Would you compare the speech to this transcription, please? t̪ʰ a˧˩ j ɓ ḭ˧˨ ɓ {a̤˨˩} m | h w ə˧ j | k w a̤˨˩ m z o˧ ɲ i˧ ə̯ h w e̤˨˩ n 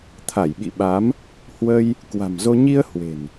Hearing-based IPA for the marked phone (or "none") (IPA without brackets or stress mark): a˨˦